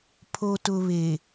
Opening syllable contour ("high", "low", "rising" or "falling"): low